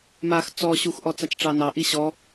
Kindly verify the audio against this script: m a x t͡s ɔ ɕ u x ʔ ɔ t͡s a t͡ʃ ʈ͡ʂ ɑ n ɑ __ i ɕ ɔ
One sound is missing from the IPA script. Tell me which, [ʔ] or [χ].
ʔ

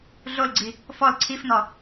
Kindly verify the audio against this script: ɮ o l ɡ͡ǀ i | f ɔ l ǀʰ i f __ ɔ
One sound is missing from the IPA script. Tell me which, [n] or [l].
n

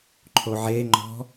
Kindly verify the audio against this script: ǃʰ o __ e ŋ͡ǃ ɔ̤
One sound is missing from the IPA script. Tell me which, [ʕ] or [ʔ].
ʕ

